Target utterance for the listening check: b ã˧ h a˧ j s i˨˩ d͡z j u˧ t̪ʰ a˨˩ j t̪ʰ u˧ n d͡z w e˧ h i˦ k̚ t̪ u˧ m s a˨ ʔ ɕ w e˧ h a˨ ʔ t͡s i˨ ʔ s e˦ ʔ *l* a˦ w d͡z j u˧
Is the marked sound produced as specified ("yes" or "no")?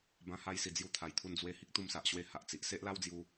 yes